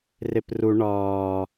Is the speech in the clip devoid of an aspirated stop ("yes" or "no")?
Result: yes